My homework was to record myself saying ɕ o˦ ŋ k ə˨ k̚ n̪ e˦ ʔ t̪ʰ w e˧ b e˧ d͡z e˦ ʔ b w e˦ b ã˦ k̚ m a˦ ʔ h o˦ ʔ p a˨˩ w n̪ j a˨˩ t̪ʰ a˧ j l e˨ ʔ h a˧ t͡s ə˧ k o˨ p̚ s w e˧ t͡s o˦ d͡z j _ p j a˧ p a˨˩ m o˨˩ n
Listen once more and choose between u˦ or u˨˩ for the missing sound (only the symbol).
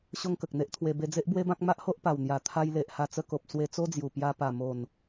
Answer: u˨˩